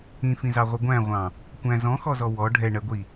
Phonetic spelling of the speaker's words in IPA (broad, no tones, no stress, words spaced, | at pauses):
ĩfĩzɑʁʷɪ ɡʷæ̃ʁʷɑ̃ | kʷæ̃ zɔ̃xɔzɔ wɔ ɖʱɛɳɜɡʷi